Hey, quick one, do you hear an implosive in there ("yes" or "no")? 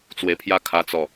no